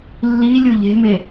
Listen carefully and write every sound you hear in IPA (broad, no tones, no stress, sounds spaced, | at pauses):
lː i lʲ ʊ ʎ e̤ m e